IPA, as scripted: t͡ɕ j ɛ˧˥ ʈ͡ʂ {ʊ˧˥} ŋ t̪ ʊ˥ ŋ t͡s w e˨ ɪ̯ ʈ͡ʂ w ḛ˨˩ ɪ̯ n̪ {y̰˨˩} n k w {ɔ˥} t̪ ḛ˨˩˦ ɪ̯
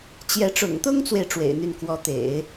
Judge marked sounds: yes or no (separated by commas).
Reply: no, no, no